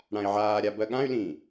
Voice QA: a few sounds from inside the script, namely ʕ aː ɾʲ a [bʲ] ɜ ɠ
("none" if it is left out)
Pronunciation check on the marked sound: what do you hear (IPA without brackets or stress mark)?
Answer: b